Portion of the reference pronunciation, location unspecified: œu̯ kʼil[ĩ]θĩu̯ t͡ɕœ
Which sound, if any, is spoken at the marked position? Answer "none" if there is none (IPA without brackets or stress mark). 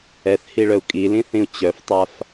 ĩ